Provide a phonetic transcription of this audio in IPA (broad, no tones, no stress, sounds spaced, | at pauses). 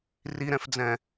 r i ɾ ɛ̃ f d͡z ɛ̃